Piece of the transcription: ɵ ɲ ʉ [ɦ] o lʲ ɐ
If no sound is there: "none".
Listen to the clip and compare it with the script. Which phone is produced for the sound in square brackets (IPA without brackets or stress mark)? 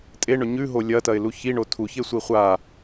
ɦ